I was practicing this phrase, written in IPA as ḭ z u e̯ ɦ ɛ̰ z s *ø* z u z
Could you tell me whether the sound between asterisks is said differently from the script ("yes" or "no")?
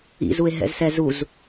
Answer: yes